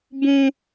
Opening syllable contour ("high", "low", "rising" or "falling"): high